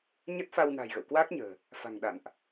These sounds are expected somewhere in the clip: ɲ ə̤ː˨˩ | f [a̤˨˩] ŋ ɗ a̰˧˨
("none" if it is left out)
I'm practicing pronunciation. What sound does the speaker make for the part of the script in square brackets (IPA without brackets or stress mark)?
a̤˨˩